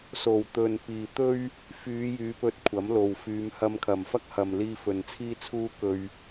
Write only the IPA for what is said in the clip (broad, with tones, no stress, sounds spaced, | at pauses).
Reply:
s o˨˩ w t̪ ɵ˨ n p iː˨ t̪ ɵ˥ ɥ | f yː˨˧ j yː˨˧ p ɵ˧ t̚ kʷʰ ɐ˨˥ m l o˨ w f yː˨˧ m h ɐ˧ m kʰ ɐ˨ m f ɐ˥ k̚ h ɐ˨ m l iː˧ f ɵ˨ n t͡sʰ iː˥ t͡sʰ uː˥ k ɵ˥ ɥ